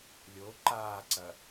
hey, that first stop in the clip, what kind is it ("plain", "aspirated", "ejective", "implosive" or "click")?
click